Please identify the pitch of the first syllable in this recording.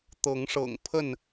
rising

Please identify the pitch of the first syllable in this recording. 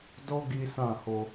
high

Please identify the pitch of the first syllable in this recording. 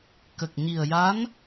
low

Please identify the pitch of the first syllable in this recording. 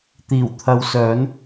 low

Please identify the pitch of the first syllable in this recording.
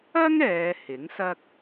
high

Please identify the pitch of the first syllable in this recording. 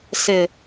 low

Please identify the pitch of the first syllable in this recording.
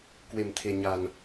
low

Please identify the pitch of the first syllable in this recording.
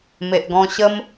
low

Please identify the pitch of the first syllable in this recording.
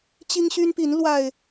high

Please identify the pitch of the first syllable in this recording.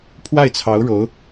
falling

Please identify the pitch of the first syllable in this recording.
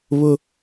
high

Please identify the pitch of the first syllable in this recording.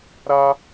high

